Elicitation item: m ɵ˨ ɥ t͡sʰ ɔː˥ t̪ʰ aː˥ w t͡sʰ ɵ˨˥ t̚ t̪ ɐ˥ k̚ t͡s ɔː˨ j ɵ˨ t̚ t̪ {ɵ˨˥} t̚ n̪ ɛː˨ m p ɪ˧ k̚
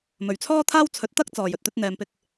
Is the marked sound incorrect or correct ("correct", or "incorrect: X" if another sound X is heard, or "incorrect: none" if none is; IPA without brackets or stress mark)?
incorrect: ɵ˧